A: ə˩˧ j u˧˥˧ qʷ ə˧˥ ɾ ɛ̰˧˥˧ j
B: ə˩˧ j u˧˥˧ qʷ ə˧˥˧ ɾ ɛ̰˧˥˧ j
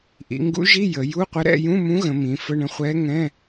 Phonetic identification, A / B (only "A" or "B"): A